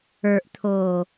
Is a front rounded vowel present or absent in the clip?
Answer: absent